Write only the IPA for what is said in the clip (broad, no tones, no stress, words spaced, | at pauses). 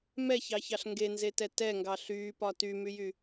mɛçɑçɑɬ ŋɡenzetɛ tɛŋɡɑ ɬyːpɒ tymyjy